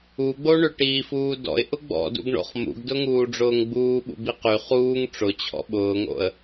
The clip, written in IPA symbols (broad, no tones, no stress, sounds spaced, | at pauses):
u ɡ͡b o ɳ ʏ ʈ iː f uː d ɔ̰ ɪ̯ ʔ ʊ ɡ͡b ɔ̰ d ṵ ɡ ɳ o̰ χ m ṵ ɡ d ʊ ŋ uː ɖ͡ʐ ʊː ŋ ɡ͡b uː ɓ ṵ b i q y χ uː ŋ ʈ͡ʂ ʊ t͡ɕʰ ɔ̰ ɓ ʊː ŋ o̰ ə̯